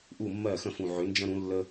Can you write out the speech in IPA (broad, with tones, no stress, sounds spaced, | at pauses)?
ʔ u˥˩ mː ɜ˥˩ x ə̃˥˩ f ũ˨˩ ʕ ʏ˩˥ n d͡ʒ ə̃˦ ɾ ũ˩˥ lː ə˦